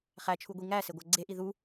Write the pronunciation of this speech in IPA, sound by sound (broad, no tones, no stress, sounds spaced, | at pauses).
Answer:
χ æ t͡ʃʰ u ɡʷ i ŋ æ s e ɡʷ æ ɡ͡ǀ e ʔ i ð u